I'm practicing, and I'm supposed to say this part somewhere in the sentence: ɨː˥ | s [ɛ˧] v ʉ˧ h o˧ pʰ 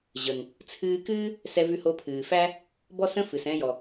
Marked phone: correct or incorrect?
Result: correct